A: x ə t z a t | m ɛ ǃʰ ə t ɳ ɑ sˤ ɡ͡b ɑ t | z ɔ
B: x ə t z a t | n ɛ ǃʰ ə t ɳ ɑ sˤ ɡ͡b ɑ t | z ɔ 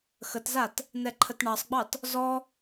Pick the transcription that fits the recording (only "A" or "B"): B